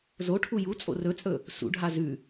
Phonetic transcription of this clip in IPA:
z o ʈʰ u j u t͡sʼ o̰ r ɵ t͡sʼ ɵ | s ṵ ɖʱ a z ʉ

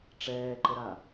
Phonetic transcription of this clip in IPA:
ʈ͡ʂ ɛː ǃ ə ɾ a

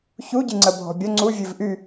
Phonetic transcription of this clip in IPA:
ç u ɟ ɨ ŋ͡ǀ ə bʱ ɔ̤ bʲ ə ŋ͡ǀ u vʲ ɨ v ʔ y

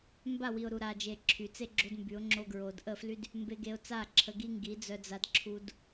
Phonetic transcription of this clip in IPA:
m b a˦˨ w i˨ ʊ̯ ɾ u˨ ɾ a˨ d͡ʒ e˨ ǁʰ y˨ t͡s e˦ ɡ͡ǁ o˧ d m b y˨˦ ʊ̯ ŋ͡ǁ o˦ ɡ ɹ o˧ d ʔ ə˦˨ f l y˦ d | m b e˧ ɡ e˧ ʊ̯ t͡s a˦˨ ǁʰ ə˧ ɡ i˦ ŋ ɡ i˨˦ d͡z œ˧ d͡z a˧ d ǁʰ u˧ d

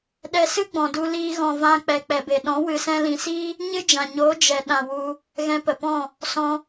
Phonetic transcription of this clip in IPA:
ɗ ɛ˧ s ɨ˦ ɡ͡b ɔ̃˨ d u˧ l iː˧ ɣ ɔ̃˨ v ã˧ k͡p ɛ˨ k͡p ɛ˨ b e˨ ɗ ɔ̃˨˦ w ɨ˨ s ɛ̃˧ l ĩ˨ s iː˦ | ɲ ɨ˦ d͡ʒ ã˨ ɲ oː˨˦ d͡ʒ ɛ˨ ɗ ã˨ w u˧ | ɣ ɛ̃˧ p ə˨ p ɔ̃˦˨ | s ɔ̃˧

